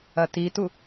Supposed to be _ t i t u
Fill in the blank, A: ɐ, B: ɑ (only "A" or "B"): A